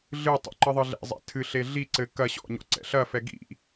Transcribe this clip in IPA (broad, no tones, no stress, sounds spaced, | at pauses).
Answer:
ɮ ɨ tˤ ṵ ǃ ɨ ðˤ ɨ ɮ ɛ̰ zˤ ɛ̰ tʰ ɨ ɬ e ɮ i ǀ ɘ k ɐ ɕ ɔ̰ ɲ ɔ̰ ǀ ɛ̰ ɬ ɐ f ɛ ɡ ḭ